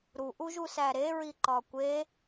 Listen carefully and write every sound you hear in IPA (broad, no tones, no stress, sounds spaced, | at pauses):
ɾ u ʔ u ʒ u s æ ɾ e ɹ i ǃ ɒ kʷ e